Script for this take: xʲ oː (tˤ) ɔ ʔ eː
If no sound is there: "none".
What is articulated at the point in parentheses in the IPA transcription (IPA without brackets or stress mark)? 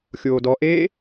d